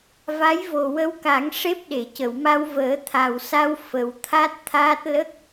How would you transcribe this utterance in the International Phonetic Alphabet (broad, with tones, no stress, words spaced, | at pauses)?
va˧˥jvo˨˩wə˧wka˨˩˦ŋ ʂe˦˥p̚ɗe˨˩˨cə˨˩˨w ma˧wvəː˨˩˦t̪ʰa˨˩wsa˧w fə˨˩w t̪ʰa˦˥t̚t̪ʰaː˦˥t̚ lə˦˥k̚